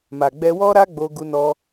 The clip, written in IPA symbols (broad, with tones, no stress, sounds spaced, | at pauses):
m a˨ ɡ͡b ɛ˧ w ɔ˦ ɾ a˦ ɡ͡b o˧ ɡ u˧ n ɔ˧